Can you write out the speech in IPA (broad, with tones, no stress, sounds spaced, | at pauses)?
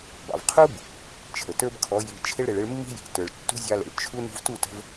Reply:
b ɑ̰˨ v qʰ u˦ b | t͡ʃʰ ə˨ t ə˞˦ b kʰ ɔ˨˦ j i˨ t͡ʃʰ ɪ˧ ɭ ɾ ɪ˨ ɭ ɪ˧ ɭ mː i̤˦ j i̤˨ t ə˞˨ ɭ tː ṳ˦ zʲ ɑ˧ l ə̰˨ ɭ t͡ʃʰ u˦ n ṳ˧ v t u˦˨ t ə̤˧ v